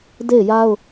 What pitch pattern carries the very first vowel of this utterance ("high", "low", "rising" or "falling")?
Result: falling